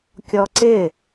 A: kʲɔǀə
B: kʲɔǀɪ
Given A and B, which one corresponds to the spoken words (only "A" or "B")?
B